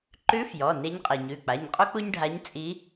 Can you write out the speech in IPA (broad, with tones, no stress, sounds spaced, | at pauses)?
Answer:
ǃ ʉ˧˥ f j ɔ˩˧˩ n e˧˥ ɲ qʼ e˩ ɲ ʉ˩˧˩ k͡p a˩˧˩ ɲ qʼ u˥ k͡p u˥ ɲ ɖʱ a˧˥ ɲ t͡sʼ i˧˥